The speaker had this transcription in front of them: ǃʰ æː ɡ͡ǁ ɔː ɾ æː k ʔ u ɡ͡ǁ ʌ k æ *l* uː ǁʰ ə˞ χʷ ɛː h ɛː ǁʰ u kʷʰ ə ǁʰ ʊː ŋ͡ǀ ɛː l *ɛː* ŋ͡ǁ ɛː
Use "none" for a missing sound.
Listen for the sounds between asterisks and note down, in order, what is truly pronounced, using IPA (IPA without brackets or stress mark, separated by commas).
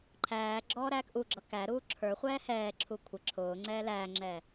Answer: ɾ, æː